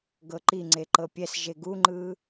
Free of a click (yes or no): no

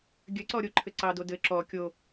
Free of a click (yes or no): no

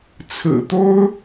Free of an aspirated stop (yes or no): no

